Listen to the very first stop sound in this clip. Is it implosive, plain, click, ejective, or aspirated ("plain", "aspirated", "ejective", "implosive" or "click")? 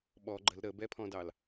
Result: implosive